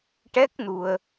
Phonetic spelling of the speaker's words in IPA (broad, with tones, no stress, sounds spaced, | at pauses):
ʈ ɛ˦˥ k̚ n u˧ ə̯